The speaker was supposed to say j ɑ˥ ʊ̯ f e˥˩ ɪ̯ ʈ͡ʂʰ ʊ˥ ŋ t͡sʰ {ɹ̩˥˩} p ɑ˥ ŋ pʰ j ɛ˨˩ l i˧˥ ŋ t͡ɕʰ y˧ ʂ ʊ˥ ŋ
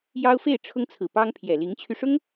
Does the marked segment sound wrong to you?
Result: yes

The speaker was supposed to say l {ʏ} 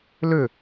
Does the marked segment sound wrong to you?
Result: no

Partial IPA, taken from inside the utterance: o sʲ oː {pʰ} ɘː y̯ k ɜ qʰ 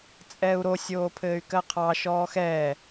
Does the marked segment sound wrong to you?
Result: no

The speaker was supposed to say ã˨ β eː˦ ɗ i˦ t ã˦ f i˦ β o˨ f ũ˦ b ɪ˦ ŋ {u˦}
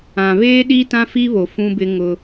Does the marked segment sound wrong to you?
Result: yes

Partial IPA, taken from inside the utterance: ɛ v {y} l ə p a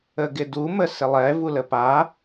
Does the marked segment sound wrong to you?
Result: yes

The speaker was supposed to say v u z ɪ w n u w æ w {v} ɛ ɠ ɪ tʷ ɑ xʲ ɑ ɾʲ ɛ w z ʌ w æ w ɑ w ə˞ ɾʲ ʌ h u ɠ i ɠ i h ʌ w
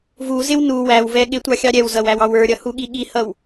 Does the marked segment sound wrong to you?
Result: no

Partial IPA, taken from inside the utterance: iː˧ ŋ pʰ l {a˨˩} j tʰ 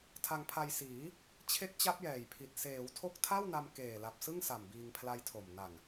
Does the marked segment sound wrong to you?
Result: yes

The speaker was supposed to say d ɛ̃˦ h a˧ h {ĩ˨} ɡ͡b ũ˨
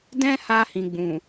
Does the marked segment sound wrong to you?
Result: no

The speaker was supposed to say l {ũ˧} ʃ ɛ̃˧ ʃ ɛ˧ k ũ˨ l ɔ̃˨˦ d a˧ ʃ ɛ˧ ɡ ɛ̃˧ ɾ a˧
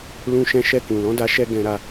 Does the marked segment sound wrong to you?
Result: no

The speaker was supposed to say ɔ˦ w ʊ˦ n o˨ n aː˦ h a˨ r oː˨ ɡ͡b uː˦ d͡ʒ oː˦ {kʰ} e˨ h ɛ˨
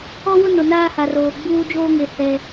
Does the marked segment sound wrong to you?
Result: yes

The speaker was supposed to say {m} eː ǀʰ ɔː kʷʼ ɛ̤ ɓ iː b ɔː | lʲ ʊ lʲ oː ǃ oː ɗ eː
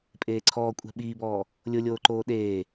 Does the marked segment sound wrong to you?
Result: yes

